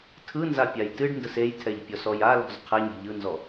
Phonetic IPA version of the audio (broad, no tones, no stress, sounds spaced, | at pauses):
tʰ ɯ n z a pʲ a j t ɨ ɖ n d ə s e j tʰ ɛ ʎ pʲ ɔ s ɔ j a l ɔ̤ z qʰ ɛ ɲ e̤ ʎ ɯ n z ɔ